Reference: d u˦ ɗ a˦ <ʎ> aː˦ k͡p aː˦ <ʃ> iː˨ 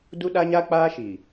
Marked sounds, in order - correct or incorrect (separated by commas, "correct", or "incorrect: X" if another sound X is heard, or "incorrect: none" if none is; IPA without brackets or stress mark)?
incorrect: ɲ, correct